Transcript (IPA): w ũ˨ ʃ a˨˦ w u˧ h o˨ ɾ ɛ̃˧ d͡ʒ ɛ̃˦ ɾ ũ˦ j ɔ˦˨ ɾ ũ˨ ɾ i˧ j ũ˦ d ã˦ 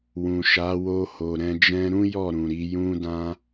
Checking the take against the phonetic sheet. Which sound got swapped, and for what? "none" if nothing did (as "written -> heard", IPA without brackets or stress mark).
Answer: u˧ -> o˧